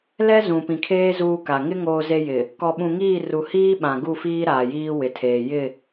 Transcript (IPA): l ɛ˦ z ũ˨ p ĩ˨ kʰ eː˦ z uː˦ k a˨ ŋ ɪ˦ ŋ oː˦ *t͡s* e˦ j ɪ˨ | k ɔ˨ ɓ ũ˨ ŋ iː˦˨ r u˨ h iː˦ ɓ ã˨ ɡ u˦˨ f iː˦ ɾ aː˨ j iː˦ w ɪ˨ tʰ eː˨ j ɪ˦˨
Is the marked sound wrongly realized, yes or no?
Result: yes